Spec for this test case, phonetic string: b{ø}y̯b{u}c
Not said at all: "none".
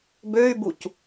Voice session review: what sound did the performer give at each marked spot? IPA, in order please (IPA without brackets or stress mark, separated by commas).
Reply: ø, u